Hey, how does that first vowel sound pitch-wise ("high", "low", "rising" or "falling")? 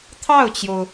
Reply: falling